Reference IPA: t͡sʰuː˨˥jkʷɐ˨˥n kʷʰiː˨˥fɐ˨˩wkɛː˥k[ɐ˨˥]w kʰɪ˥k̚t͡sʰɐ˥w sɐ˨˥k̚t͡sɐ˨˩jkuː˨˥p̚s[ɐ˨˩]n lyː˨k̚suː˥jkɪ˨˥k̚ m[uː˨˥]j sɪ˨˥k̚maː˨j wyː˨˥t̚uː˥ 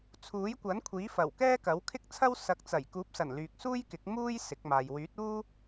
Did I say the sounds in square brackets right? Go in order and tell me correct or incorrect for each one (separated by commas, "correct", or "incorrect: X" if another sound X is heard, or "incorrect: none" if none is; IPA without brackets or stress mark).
correct, correct, incorrect: uː˥